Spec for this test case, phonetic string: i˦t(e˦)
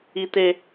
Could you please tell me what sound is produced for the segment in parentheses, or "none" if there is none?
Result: e˦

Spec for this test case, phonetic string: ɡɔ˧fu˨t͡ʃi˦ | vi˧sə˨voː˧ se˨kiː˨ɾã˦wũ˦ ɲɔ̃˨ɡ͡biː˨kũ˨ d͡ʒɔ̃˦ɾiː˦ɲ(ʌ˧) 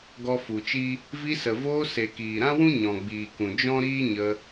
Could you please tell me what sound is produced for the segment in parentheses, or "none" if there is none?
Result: ə˧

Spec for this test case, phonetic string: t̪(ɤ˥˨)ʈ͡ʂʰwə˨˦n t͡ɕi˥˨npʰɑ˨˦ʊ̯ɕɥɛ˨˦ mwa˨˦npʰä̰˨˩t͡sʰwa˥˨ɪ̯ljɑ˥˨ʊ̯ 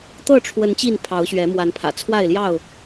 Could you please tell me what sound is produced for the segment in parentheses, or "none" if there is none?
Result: ɤ˥˨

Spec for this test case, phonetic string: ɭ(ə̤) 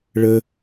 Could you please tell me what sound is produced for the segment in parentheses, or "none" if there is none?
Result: ə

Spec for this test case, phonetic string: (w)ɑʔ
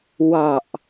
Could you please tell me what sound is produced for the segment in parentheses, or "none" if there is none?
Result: w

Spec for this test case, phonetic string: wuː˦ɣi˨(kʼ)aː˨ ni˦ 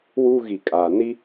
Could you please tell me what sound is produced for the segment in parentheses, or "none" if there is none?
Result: kʼ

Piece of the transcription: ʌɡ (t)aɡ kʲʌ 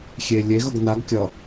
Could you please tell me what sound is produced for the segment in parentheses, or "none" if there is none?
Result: n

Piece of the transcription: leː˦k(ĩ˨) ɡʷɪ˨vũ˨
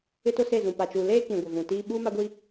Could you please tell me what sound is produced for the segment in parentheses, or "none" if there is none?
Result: ĩ˨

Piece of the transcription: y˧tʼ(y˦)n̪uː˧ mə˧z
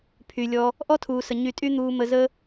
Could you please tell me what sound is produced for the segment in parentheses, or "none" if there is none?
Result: y˦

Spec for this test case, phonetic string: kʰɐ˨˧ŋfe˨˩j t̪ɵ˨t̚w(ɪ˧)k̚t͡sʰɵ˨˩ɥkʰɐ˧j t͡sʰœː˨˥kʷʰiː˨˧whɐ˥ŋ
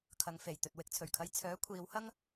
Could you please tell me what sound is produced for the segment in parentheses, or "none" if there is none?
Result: ɪ˨˥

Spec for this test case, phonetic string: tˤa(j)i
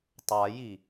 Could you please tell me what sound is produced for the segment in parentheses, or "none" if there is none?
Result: j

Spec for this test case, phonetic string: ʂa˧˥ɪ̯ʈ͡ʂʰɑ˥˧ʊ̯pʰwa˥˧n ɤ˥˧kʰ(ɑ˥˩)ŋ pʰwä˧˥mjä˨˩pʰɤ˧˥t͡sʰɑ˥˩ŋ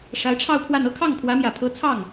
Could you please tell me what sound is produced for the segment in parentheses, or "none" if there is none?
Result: ɑ˥˩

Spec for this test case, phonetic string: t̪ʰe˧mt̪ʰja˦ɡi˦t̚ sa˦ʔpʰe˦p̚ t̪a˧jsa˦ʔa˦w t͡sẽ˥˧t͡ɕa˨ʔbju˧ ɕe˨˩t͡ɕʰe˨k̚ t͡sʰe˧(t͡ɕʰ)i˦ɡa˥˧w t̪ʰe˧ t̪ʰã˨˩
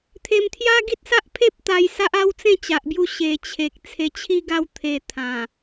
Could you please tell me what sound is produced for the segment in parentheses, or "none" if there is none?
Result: t͡ɕʰ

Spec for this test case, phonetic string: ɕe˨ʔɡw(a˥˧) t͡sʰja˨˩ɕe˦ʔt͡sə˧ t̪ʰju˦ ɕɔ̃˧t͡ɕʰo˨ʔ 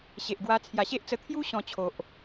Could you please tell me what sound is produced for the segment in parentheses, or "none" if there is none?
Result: a˧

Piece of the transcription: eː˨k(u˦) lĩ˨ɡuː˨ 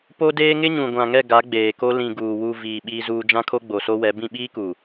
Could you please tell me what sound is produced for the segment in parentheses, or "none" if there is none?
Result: o˦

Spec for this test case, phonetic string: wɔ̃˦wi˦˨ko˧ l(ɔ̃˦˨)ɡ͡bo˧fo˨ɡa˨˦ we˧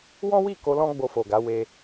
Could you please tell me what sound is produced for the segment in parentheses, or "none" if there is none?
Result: ɔ̃˦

